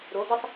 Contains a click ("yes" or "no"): no